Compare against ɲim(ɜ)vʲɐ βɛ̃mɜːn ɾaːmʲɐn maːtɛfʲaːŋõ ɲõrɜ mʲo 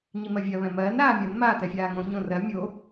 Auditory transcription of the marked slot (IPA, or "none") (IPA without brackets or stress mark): ɜ